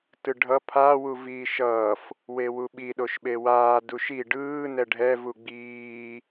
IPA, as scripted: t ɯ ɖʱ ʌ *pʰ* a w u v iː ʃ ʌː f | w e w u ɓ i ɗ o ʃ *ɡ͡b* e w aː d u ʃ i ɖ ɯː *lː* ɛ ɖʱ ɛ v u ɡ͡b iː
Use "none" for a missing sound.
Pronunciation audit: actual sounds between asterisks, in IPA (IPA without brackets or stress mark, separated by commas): pʰ, ɓ, n